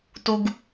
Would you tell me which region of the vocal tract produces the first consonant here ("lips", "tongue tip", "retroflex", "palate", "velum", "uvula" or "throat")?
tongue tip